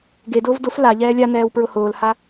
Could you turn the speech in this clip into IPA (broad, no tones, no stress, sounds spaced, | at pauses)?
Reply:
ɡ e d ʊː v d ʊ f l a ʎ ɛː lʲ a n ɛː w p ɹ ʊ h ʊː l h a